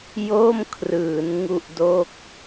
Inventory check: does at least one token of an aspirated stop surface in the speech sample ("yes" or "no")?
yes